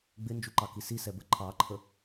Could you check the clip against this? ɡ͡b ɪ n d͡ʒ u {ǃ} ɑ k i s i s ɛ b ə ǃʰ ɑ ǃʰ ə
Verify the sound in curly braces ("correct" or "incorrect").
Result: correct